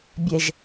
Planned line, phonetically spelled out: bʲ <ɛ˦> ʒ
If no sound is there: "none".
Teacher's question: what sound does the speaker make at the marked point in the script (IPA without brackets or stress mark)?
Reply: ɛ˦